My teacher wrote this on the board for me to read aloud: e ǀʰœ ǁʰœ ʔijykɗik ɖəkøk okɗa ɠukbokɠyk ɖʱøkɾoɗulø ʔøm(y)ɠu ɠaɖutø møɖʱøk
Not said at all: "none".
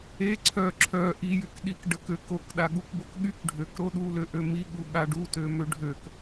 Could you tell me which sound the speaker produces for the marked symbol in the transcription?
i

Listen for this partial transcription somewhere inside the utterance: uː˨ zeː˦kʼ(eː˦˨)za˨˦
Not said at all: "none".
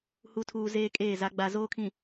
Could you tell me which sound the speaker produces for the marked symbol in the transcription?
eː˦˨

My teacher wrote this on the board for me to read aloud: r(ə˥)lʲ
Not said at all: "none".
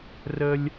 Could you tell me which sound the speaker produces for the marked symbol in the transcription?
ə˥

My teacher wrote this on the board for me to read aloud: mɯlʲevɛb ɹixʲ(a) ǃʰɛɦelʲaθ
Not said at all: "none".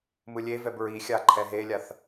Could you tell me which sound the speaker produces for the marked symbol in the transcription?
a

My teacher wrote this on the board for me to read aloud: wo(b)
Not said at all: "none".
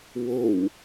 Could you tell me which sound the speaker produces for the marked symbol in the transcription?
w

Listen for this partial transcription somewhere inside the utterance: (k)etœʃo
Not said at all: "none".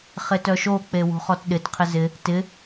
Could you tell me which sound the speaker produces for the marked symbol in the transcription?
χ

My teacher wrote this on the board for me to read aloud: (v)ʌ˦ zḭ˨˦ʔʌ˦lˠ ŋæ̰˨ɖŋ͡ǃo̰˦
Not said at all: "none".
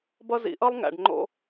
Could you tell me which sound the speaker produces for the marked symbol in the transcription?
b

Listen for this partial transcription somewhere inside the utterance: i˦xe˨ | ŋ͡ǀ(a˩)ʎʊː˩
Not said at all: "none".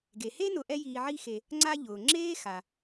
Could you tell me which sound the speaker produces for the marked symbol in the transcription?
a˦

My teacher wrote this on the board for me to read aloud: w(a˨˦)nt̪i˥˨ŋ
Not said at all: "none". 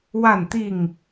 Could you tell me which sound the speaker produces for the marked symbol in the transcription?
a˥˨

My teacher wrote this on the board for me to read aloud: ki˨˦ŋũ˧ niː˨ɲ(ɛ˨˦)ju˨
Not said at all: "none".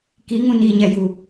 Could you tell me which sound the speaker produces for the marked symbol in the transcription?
ɛ˨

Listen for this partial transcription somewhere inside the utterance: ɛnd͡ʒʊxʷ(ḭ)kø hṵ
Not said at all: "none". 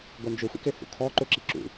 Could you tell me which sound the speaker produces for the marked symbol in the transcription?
ḭ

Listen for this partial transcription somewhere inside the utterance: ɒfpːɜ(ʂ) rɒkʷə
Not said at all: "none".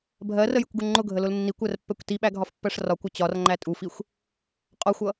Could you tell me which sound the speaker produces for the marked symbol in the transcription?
ʂ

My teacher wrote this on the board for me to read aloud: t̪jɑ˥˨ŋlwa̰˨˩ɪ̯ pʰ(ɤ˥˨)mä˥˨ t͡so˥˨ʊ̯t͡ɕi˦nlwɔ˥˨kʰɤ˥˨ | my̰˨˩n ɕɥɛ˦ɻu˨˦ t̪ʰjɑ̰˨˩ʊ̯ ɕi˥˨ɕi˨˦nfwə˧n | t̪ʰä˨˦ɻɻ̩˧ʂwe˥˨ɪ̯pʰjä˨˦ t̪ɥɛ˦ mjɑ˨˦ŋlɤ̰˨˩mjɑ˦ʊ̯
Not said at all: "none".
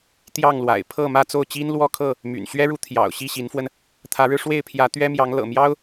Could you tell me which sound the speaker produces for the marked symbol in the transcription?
ɤ˥˨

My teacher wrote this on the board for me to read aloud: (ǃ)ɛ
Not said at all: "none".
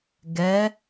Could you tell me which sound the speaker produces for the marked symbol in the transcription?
ɡ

